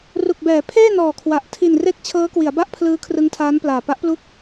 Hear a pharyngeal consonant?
no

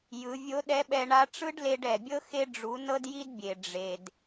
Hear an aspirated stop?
no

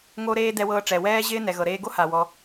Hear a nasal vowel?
no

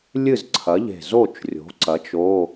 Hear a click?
yes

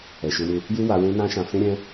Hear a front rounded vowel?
yes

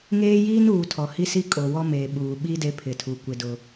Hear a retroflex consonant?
no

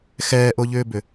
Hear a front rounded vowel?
yes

